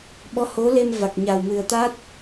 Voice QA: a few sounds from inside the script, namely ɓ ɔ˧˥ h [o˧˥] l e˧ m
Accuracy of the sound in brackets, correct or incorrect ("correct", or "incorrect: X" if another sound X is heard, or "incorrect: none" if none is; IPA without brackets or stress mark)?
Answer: correct